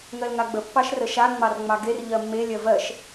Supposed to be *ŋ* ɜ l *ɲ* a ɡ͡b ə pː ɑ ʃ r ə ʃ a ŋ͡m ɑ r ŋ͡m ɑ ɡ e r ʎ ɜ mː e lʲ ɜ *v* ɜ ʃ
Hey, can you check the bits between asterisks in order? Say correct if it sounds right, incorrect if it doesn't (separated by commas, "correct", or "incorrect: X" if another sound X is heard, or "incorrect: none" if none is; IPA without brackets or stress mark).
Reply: correct, incorrect: ŋ, correct